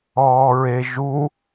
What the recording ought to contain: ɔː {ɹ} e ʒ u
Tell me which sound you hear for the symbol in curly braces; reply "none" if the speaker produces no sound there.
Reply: ɹ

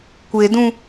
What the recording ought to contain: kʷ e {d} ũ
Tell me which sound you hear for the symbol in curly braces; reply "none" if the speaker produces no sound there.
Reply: d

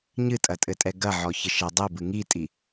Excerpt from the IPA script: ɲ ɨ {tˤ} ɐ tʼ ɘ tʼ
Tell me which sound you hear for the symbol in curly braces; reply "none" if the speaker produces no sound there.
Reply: tʼ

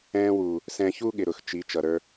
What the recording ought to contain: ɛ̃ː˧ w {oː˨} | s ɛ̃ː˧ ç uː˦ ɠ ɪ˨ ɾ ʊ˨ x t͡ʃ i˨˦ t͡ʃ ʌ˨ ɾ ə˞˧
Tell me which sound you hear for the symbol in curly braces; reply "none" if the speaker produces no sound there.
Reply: uː˨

